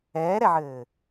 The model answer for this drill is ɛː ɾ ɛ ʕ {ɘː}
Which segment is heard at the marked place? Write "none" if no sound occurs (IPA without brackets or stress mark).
ɘː